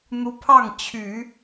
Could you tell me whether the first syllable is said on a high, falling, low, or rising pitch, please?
high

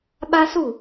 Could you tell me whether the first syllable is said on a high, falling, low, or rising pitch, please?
high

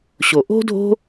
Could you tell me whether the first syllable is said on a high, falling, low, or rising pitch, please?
low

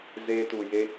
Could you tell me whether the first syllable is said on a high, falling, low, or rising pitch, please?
high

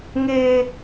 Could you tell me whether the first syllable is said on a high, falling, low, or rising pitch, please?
high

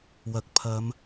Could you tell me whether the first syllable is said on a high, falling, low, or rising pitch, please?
low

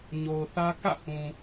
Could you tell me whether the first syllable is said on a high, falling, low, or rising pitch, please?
low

